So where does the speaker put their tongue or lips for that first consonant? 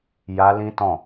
palate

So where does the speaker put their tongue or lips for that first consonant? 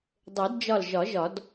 tongue tip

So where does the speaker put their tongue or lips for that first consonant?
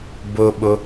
lips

